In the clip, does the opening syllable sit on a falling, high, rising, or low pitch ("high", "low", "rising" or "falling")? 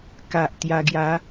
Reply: low